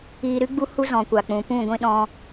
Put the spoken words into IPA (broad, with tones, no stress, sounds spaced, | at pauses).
iː˧ ɾ ɨ˦ ɡ͡b u˦ h u˦ z ɔ̃˨ kʷ a˨ k͡p ũ˨ p ũ˦˨ ɡʷ ĩ˧ ɗ ɔ̃˧